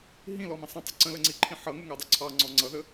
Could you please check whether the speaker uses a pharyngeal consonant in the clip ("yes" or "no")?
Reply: yes